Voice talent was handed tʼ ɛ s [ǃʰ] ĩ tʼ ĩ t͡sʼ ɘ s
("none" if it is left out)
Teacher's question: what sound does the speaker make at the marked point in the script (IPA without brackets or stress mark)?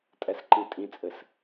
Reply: ǃ